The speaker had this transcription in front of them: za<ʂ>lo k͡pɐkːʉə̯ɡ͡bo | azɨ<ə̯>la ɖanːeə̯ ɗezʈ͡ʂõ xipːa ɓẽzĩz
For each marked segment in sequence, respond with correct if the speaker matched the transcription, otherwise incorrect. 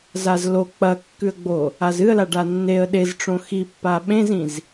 incorrect: z, correct

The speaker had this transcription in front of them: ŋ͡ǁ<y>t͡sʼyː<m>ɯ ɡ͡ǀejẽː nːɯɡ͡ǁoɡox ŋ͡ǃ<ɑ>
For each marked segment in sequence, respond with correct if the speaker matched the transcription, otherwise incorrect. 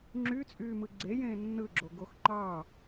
correct, correct, correct

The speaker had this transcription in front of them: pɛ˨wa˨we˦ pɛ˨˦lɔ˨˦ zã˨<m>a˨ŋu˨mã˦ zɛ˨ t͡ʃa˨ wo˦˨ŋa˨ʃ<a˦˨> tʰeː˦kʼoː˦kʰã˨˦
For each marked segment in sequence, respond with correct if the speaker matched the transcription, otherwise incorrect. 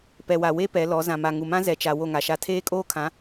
correct, correct

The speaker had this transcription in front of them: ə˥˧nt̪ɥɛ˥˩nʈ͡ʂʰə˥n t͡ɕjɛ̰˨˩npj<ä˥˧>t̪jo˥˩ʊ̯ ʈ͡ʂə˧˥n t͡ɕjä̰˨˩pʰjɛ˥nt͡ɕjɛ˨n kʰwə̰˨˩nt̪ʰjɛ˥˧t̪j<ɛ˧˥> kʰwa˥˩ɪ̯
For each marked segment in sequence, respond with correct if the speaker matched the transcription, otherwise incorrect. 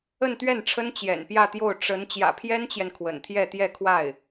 correct, incorrect: ɛ˥˧

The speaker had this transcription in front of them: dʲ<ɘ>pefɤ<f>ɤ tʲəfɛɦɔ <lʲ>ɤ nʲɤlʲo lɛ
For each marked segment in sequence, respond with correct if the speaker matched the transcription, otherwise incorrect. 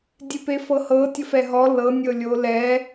incorrect: e, incorrect: h, incorrect: l

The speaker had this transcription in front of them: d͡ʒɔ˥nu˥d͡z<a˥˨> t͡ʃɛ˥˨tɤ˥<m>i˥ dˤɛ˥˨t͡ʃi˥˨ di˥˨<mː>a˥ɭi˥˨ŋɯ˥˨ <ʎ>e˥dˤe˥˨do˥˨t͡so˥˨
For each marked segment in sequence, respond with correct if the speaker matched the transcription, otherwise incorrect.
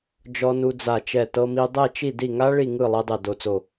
correct, correct, incorrect: ŋ, incorrect: lˠ

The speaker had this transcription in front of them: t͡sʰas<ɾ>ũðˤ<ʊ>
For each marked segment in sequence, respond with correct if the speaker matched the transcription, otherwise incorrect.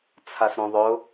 correct, correct

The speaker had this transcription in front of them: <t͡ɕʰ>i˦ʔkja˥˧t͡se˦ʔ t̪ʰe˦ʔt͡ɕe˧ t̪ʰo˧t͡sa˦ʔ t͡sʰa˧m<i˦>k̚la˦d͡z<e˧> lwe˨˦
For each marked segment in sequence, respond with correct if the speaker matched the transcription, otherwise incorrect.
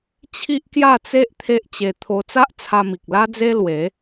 correct, incorrect: i˨, incorrect: e˦

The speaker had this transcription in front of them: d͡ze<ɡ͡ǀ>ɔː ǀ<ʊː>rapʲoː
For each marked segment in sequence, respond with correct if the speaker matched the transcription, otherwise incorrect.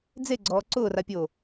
correct, correct

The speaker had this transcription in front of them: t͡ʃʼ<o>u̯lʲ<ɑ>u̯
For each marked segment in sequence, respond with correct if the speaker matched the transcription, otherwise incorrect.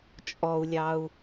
incorrect: ɔ, correct

